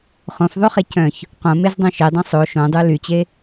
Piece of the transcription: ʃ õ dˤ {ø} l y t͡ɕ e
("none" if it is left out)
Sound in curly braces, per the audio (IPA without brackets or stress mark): ø